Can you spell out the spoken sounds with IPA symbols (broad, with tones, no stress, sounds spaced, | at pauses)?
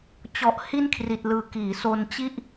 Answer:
t͡ɕ ɔ˨˩ ʔ h i˥˩ n kʰ r i˨˩ t̚ l ɯː˨˩ k iː˩˦ s o˧ n t͡ɕ i˥˩ ʔ